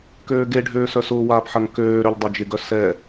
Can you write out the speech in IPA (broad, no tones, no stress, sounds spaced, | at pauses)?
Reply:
k øː ɡ e ɖʱ øː s œ s ʊː w aː p ħ ɐ ŋ k øː ɾ ø ʎ dˤ ø d͡ʒ ɪ ɡ œ s ɛ